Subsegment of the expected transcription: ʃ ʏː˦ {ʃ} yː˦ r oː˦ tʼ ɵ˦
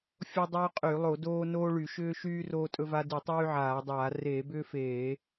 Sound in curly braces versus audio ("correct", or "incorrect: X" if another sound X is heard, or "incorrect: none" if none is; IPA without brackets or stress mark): correct